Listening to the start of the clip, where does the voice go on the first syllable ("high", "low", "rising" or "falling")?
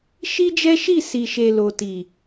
high